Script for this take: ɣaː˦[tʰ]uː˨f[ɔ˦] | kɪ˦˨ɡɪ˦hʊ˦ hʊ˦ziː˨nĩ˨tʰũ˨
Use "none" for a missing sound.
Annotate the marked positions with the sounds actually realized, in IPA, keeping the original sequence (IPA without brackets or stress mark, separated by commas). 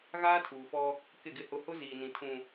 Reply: tʰ, ɔ˦